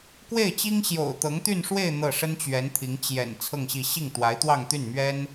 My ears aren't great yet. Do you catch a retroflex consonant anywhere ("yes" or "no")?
yes